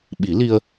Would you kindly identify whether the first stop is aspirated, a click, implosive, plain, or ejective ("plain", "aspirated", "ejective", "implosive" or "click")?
implosive